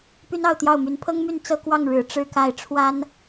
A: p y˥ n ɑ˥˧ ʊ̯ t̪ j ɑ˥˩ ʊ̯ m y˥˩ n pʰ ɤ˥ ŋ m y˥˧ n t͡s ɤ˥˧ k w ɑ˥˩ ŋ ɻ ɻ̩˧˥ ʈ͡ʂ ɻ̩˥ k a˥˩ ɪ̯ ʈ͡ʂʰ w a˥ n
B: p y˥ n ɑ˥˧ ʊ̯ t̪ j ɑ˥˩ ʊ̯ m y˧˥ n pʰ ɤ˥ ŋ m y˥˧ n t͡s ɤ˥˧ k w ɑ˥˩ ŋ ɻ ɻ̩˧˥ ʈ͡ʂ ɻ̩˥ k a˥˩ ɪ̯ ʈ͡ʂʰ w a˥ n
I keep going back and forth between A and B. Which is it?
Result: B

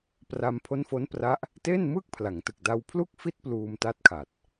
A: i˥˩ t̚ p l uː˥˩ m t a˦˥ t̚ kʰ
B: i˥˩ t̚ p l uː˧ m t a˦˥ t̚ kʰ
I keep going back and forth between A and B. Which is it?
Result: B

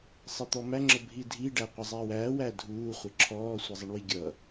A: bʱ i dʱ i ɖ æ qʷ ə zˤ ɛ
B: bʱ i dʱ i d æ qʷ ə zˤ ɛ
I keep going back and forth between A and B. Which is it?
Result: A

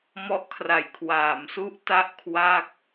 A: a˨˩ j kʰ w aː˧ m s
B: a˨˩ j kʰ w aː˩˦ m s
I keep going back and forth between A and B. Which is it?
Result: B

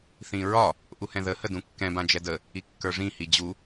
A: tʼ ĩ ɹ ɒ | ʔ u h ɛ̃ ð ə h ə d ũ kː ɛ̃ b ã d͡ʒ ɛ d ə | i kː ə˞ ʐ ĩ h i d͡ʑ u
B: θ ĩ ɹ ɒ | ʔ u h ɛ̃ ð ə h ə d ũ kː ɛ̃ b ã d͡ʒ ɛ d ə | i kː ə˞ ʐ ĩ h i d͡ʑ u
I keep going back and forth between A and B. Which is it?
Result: B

